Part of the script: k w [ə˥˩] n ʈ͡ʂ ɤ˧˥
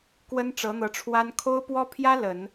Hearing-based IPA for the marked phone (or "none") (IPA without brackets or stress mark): ə˥